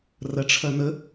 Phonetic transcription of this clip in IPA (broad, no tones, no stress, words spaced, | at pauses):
rɐʈ͡ʂʰɐn̪ə